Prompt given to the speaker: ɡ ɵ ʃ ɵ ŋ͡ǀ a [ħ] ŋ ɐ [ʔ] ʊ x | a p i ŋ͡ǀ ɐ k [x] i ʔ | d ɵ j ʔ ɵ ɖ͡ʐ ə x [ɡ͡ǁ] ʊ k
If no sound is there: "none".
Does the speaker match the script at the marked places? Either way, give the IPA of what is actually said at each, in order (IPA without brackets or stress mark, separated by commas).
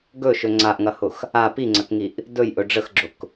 ʔ, h, ŋ, ɡ͡ǁ